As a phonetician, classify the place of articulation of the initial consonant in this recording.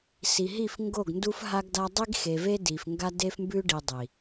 alveolar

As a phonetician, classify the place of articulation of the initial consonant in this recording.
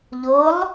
palatal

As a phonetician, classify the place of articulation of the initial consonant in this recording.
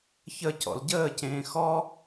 palatal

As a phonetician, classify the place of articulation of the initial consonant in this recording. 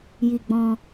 palatal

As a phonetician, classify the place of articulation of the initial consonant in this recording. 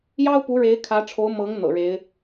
palatal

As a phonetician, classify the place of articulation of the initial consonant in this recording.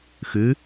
velar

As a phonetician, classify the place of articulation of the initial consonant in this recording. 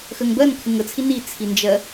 velar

